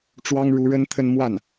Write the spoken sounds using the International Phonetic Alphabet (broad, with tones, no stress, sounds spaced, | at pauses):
ʈ͡ʂ w ɑ˥ ŋ ɻ u˧˥ ɻ ə˥ n t̪ʰ ə˥˧ n m w a˥˩ n